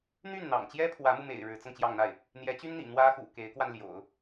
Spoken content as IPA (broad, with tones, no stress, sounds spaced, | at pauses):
n̪ y˥˩ n n̪ ɑ̰˨˩ ŋ t͡ɕ j ɛ˥ pʰ w ä˧˥ m u˧ m ḛ˨˩ ɪ̯ ɻ ɻ̩˧˥ t͡s ɤ˧ ŋ t͡ɕ j ɑ˥˧ ŋ n̪ a˥˩ ɪ̯ | n̪ j ɛ˧˥ t͡ɕ y˥ n n̪ ḭ˨˩ n̪ w ä˥ x ṵ˨˩ k e˧˥ ɪ̯ k w a˧ n l j o̰˨˩˦ ʊ̯